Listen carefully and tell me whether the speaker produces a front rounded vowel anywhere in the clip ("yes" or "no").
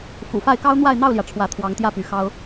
yes